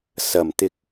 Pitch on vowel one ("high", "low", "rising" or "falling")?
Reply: low